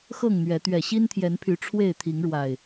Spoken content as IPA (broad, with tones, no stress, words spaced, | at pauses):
xɤ˥˨ŋn̪ɥɛ˨˦ t̪ɥɛ˨˩ɕi˦nt̪ʰjɛ˨˦npʰy˨˦ ʈ͡ʂʰwe˥˨ɪ̯t̪ʰi˨˦ŋɻwa˨˩ɪ̯